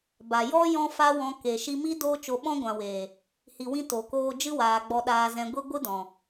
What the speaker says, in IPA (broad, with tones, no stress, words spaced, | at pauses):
ba˨jɔ˦ jɔ̃˦fa˦wɔ̃˧ ke˨ ʃi˧mi˦ doː˦t͡ʃo˧ ɓɔ̃˦ɡʷã˨weː˨ | hi˨wĩ˧ to˨koː˧ d͡ʒɨ˧waː˨ɡ͡bɔ˨ ɗaː˨zɛ̃˨ɡʷi˧ ɡʷɨ˦dɔ̃˨